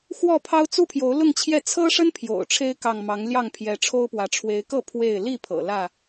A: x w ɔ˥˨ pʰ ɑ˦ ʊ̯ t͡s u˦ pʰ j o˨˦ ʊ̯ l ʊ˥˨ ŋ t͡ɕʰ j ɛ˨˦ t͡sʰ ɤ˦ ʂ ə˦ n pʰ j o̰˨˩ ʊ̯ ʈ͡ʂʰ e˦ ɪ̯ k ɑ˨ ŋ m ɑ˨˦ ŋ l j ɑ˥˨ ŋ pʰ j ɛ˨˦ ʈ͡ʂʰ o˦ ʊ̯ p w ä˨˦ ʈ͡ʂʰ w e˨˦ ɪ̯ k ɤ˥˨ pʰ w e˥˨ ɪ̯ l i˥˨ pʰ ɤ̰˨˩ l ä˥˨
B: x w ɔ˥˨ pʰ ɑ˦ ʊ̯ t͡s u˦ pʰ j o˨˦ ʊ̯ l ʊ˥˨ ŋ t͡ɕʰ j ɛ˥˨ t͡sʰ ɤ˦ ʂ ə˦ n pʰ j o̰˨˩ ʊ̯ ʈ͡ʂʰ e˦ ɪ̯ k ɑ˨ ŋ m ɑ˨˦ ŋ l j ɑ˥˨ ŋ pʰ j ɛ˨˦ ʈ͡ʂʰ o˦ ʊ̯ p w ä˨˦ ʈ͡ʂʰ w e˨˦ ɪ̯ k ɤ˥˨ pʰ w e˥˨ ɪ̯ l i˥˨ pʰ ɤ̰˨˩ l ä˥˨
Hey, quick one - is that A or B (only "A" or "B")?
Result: B